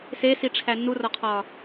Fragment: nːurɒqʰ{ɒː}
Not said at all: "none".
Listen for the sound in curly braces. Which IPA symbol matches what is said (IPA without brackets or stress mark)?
ɒː